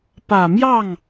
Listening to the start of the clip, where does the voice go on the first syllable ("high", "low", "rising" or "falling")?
low